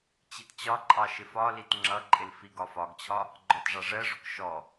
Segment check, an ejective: present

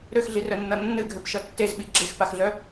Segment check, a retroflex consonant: absent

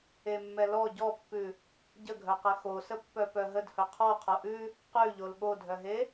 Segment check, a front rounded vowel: present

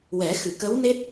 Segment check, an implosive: absent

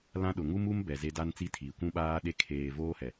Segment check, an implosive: present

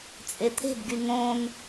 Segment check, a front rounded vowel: present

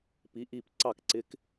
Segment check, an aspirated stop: absent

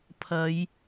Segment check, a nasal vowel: absent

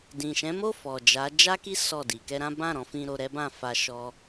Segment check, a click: absent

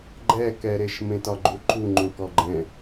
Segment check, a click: present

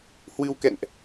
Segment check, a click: absent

